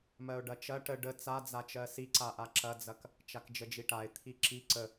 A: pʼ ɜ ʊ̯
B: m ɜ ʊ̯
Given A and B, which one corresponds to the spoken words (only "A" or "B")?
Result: B